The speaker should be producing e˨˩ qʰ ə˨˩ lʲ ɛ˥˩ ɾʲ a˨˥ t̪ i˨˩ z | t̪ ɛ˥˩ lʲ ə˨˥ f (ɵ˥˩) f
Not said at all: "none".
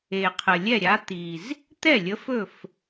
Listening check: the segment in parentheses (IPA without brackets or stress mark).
ɵ˥˩